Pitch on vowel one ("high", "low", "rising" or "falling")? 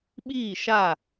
falling